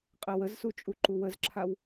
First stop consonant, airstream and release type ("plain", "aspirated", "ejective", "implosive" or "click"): ejective